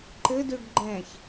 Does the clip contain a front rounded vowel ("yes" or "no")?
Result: yes